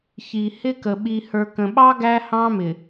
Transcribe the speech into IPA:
çi˨ hɪ˦kə˨ ɓi˨ hə˞˨kə̃˨ɓɑ˦ ɡæ˦hɑ̃˦mɪ˨

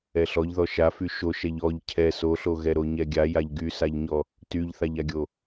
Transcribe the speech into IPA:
ɛɬɔʎðɔ ʃafy ʃoʃɛʎ ɔʎ cʰɛ soɬo ɣɛɾoɲɛɡʲa jaʎɡysaʎɲɔ | tyʎθaʎaɡʲo

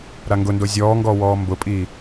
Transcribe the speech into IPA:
ɾaŋɡʊndo zʲɔːŋɡɔː wɔːmbʊpʼiː

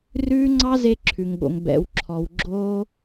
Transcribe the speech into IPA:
rʉː˦ ŋ͡ǀɑ˦ze˧ǁʰʉ˨ŋɠo̰˨ŋ bɛ̰˨wǁʰɔ˨wɡ͡ǁoː˧

